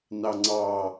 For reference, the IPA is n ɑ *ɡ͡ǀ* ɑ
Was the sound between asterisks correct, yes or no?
no